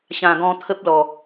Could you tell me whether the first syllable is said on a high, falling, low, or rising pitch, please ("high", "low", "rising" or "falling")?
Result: low